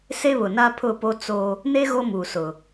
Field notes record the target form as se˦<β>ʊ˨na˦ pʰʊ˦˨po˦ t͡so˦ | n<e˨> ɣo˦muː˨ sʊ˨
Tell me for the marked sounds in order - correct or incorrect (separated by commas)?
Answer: correct, incorrect